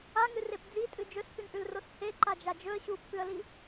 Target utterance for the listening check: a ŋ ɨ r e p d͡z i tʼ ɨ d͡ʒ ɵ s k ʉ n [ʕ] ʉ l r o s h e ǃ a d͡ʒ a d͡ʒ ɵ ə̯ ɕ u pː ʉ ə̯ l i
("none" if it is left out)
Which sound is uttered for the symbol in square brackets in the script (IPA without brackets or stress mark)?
ʔ